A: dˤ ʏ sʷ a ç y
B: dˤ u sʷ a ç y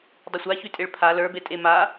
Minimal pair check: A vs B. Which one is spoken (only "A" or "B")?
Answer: A